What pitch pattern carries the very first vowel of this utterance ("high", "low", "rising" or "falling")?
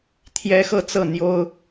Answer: high